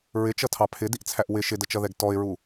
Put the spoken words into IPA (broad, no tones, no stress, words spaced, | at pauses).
ɹɪt͡ʃʌtʰɑ pʰɪdiʔt͡sʰæʔ wɪ ʃɪdət͡ʃʌðɛɡ tɔɪ̯ɹu